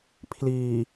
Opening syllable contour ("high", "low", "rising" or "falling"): low